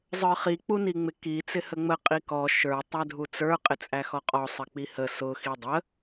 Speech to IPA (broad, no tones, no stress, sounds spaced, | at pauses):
zˤ ə˞ χ i k͡p u n i ŋ͡m ɪ k i t͡s ɪ h ə ŋ͡m ə qʼ i k ɔ ʃ ə˞ tˤ æ dʱ u t͡s ə˞ qʼ ɪ t͡sʼ æ x ɔ qʼ ɔ sˤ ɪ k͡p i h ə s ʊ x i dˤ ə